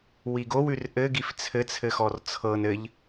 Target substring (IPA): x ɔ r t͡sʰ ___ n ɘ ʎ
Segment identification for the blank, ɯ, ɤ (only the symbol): ɤ